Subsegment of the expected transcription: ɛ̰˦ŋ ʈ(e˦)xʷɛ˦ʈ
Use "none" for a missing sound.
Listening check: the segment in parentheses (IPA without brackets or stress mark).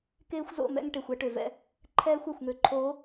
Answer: e˨